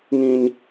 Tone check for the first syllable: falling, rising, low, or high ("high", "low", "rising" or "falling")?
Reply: high